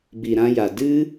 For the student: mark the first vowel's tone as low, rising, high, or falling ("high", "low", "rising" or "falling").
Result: low